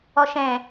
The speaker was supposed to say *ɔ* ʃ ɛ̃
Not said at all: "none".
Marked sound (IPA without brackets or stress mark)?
ɔ